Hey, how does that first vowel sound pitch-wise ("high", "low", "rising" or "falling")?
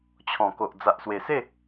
low